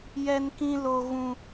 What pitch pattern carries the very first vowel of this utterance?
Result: high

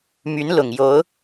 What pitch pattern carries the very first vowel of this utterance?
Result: rising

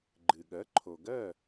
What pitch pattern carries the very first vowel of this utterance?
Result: low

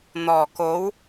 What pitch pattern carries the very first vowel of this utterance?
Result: low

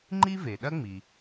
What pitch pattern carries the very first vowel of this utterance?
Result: high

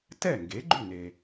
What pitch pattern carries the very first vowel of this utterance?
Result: falling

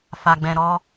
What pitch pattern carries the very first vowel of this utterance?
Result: low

